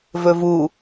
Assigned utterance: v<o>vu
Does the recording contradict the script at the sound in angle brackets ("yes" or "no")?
yes